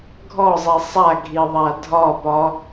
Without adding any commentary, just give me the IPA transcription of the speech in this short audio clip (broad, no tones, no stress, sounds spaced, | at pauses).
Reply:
ɡʱ ɔ zˤ i sˤ a ɡʱ i ðˤ a dʱ ɒ p ɒ